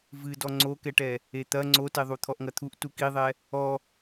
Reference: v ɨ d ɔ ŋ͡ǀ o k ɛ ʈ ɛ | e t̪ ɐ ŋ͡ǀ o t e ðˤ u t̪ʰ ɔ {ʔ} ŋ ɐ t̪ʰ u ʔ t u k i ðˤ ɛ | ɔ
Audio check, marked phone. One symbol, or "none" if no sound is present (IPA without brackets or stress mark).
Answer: ʔ